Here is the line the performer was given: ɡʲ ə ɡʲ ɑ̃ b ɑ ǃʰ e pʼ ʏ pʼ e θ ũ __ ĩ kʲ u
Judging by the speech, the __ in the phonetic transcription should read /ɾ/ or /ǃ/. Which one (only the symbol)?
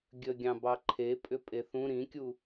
ɾ